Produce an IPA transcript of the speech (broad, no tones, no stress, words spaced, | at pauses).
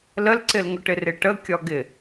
ləlǀɪlŋʊʈɪ rɪʈə kʲɒɡɪ